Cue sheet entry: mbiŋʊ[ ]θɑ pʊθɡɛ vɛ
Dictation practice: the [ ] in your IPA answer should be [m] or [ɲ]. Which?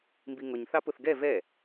ɲ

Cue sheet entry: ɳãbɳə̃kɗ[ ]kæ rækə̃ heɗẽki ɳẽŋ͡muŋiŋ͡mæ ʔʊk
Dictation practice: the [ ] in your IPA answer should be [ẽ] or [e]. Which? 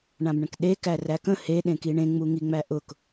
e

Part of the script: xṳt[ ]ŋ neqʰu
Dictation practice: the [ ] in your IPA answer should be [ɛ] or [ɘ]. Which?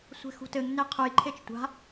ɘ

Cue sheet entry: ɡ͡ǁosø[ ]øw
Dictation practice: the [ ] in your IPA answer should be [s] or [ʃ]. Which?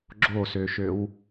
ʃ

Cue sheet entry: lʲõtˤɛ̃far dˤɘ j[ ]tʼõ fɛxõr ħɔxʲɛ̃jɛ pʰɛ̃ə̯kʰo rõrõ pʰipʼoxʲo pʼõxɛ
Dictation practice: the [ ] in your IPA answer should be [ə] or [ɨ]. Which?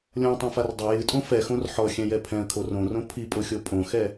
ɨ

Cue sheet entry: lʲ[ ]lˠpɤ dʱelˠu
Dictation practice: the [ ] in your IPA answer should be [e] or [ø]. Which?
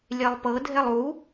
e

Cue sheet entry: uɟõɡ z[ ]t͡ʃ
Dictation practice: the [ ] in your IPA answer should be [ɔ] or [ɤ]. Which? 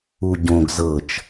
ɤ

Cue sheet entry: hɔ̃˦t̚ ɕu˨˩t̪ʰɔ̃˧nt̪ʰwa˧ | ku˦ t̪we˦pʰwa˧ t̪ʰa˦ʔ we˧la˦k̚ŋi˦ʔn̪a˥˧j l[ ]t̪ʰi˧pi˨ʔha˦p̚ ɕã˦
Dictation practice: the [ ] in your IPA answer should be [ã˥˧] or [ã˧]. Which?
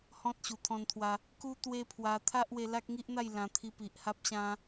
ã˧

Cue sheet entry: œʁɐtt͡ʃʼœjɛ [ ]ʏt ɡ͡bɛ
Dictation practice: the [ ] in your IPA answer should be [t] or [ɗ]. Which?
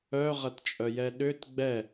ɗ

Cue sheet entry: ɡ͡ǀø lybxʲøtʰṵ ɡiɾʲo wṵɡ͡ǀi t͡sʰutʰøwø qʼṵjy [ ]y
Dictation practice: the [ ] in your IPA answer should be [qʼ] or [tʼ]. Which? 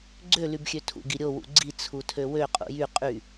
qʼ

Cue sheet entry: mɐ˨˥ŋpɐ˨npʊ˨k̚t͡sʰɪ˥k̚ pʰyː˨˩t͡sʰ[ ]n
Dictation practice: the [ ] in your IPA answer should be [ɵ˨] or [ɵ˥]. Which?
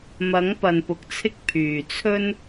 ɵ˥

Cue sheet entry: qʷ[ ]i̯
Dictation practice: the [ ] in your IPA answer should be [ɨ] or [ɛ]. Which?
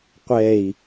ɛ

